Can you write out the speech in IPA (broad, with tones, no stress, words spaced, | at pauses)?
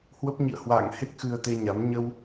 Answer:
hwə˦˥p̚ɲḭ˧˨ə̯ hwa̰ː˧˨ŋhe˦˥k̚ xɨ˧ə̯t̪e˧ɲa˨˦m ɲə˧w